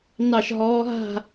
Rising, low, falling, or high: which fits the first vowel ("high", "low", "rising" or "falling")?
falling